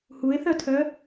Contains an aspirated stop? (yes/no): yes